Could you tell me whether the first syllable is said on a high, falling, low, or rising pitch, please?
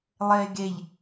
low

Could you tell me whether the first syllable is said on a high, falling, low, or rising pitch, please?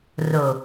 low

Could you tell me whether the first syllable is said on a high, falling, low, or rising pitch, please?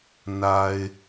low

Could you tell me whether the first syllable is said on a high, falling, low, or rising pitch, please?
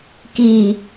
low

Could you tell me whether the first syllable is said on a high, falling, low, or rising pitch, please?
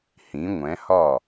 rising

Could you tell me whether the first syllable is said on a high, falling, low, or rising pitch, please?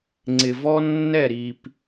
low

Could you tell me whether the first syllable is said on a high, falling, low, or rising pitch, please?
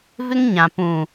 high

